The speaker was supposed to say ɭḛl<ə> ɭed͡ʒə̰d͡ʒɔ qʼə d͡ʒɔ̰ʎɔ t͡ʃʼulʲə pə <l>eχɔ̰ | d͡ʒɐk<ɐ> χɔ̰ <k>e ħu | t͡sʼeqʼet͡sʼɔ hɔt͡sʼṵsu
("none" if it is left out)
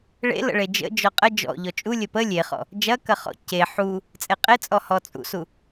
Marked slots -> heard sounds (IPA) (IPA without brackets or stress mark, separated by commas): ə̰, lʲ, ɐ, c